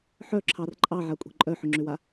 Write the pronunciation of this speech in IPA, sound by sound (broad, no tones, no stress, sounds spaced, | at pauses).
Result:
ħ œ ǁʰ ɑ r ǃʼ ɑ ʕ a kʷʼ e̤ ǃʼ œ ħ ʏ ŋ͡ǁ ʏ w a